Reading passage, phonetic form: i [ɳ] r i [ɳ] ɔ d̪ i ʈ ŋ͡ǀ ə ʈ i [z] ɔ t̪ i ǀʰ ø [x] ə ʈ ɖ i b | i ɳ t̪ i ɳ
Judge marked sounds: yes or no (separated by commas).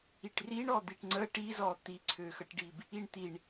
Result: no, yes, yes, yes